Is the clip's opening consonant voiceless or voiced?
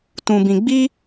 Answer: voiceless